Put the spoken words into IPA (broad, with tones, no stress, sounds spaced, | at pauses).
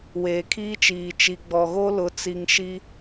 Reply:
w eː˨ kʰ iː˦ t͡ʃ iː˨ t͡ʃ i˨ ɡ͡b ɔ˨ ɣ o˦ l ʊ˨˦ t͡s i˨ ŋ ʃ i˦